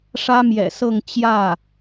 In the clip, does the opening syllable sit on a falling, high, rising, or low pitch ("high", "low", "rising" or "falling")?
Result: high